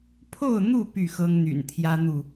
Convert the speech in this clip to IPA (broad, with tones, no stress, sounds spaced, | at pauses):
pʰ o˥˨ ʊ̯ n̪ u˥˨ p y˥˨ x ɤ˦ ŋ n̪ y̰˨˩ n t̪ʰ j ä˦ n̪ u˥˨